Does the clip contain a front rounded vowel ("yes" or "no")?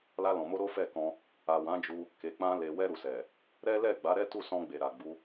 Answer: no